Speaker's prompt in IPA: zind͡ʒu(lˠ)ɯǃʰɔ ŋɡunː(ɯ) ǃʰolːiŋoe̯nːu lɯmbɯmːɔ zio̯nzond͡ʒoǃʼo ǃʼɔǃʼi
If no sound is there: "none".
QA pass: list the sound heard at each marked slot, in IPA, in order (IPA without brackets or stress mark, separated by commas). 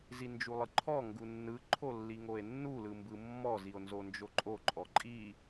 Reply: lˠ, ɯ